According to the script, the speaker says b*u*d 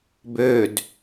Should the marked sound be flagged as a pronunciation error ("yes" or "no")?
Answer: yes